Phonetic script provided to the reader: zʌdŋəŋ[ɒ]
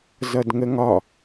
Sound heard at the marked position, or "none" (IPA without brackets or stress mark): ɒ